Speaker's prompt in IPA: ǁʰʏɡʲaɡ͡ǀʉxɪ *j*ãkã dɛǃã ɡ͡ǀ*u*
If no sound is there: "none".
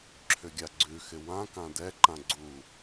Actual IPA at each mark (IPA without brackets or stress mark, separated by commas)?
w, u